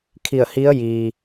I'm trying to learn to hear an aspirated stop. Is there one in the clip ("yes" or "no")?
yes